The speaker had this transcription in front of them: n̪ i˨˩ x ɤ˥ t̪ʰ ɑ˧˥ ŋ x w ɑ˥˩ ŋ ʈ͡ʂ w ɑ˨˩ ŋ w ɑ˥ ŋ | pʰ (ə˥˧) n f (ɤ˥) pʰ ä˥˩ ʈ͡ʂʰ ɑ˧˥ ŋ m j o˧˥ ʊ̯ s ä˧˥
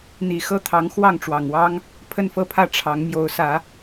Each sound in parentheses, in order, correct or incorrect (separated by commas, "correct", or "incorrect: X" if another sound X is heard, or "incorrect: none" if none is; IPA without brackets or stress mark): correct, incorrect: ɤ˥˧